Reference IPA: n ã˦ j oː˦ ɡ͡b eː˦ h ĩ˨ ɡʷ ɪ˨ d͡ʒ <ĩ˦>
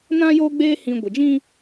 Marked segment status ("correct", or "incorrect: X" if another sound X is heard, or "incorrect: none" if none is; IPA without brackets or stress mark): correct